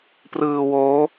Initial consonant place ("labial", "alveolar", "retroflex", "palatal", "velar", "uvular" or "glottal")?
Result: labial